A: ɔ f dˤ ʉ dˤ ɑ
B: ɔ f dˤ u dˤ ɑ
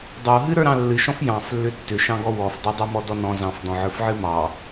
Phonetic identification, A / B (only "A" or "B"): B